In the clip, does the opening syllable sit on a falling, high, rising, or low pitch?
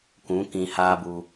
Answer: rising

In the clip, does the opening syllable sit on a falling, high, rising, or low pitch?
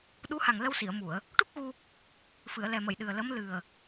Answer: rising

